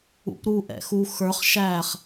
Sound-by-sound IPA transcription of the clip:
ṵ p ɾ u ʔ ɛ̰ x u x ə˞ χ ʃ æ χ

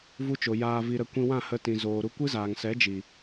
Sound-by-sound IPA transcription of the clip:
v u˧ t͡ʃ o˨ j aː˧ v i˧ ɾ ə˧ kʷ ĩ˧ w ã˦˨ h ə˧ t ĩ˨ z oː˨ ɾ u˧ kʷ ɨ˦ z aː˨ ŋ s ɛ˨˦ d͡ʒ i˨

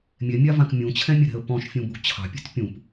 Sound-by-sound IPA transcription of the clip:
mʲ ɛ mʲ a v ã k mʲ ũ t͡ɕʰ ɛ̃ mʲ ɛ ɾ ɛ̤ ə̯ p ɔ̃ ʃ fʲ ũ b ṳ t͡ɕʰ ɑ̤ pʲ ɛ̤ t pʲ ũ p

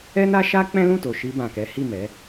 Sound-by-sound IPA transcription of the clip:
ɛ˦ n a˦ ʃ a˦ k͡p ɛ̃˦ l ũ˦˨ t o˨ ʃ i˧ b ã˨ k ɛ˨˦ h i˦˨ m ɛ˨˦

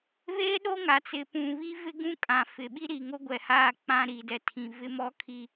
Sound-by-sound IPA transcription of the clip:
β eː˦ ɗ o˦ ŋ a˨ t͡s ɪ˨ p ũ˨ β i˦ v ɪ˦ ɡ ũ˦ kʼ ã˨ f ɪ˨ ɓ i˦ ɾ iː˨ ŋ o˦ ɡʷ ɛ˨ h aː˦˨ k͡p ã˦ ɾ i˨ d ɛ˨ tʰ ĩ˨ v ɪ˦ m ɔ˦ kʰ i˦

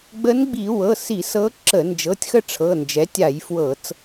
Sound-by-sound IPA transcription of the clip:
ɡ͡b ə˧˥ n ɡ͡b i˧˩˧ w ɤ˩˧˩ s i˧˩˧ s ɤ˧˥ ǁ ə˧˩˧ n d͡ʒ ɤ˩˧˩ tʲ x ə˥˨ ʈ͡ʂʰ ɤ˩˧˩ n d͡ʒ ɛ˩˥ tʲ a˧˩˧ j f w ɤ˧˩˧ t͡s

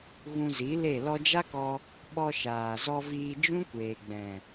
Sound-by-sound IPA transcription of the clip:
ɣ ũ˧ z i˨˦ l e˦˨ l ɔ˧ d͡ʒ a˦ k ɔ˧ | ɓ ɔ˧ ʃ aː˨ z ɔ˧ v iː˧ d͡ʒ ũ˦ kʷ eː˨ ɡ͡b ɛ̃˨

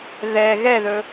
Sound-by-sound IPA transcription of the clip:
ð ɛ ɣ ɛ ð ɵ

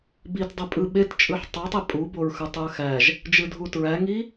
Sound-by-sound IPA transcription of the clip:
b i t dˤ i pʼ ɯ ɓ e t t͡ʃʼ ɯ ħ tˤ o tˤ i pʼ u b o ɹ x ɯ tˤ u ə̯ x æ ʒ | d͡ʒ ɯ dʱ u t ɹ æ ŋ i

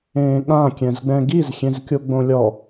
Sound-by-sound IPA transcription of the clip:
ẽː ɠ ã kʲ ɛ̃ z ɡ͡b ɛ̃ ɡ i z xʲ ẽ z kʲ o ɡ͡b õ lʲ ɔ

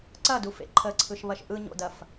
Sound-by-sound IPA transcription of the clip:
ǀ ɐ d u f ḛ ǃʰ ə ǀʰ ɯ ʃ β ɐ ʃ ʔ ɯ ɲ o̰ d ɐ f

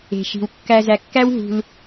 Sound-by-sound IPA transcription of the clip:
e̤˨ ʃ i̤˨ w kː æ˧ z æ˨ kː æ˦ w ɦ ṳ˧ l

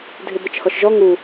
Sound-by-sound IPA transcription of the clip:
dʱ ɪ b ə t͡ʃ h ɔ ʃ ʒ ɔ ŋ u

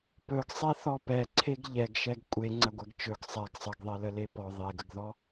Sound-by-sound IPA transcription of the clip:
p ɵ ɡ sˤ e θ ɔ p ɛ ǀʰ e ɡ ʎ ɛ ɡ ʃ ɛ ɡ kʷʼ e ŋ͡ǀ ɐ ɡʷ ɛ ɡ t͡ʃ ɵ ɡ sˤ ɛ ɡ sˤ ə ɡ ðˤ e l ə l e p ɔ ðˤ e ɡ ə ɡ ð ɔ

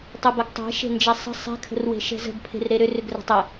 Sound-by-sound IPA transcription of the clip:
tˤ e b ɛ ɡ tˤ ɛ̤ ʃ e̤ n d͡ʒ ɛ sˤ ə̤ sˤ ɛ̤ kʰ ə̤ r w e̤ ʃ ɛ̤ z ə̤ ɡ pʰ e̤ r ɾ e ɾ ʏ r ʏ ɡ r ə̤ tˤ ə

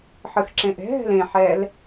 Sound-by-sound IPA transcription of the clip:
ħ ɯ x ǁ ẽ ʔ ɛ̤ ɦ ɛ̤ l ẽ ħ ɛː l

